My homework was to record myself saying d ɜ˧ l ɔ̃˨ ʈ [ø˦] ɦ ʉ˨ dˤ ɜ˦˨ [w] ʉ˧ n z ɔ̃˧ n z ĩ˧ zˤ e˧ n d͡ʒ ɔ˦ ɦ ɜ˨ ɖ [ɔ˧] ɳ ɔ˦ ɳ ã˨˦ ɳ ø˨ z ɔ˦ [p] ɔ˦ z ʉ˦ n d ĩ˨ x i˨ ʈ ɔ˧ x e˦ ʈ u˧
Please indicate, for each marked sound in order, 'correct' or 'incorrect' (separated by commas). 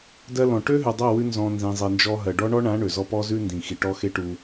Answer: correct, correct, incorrect, correct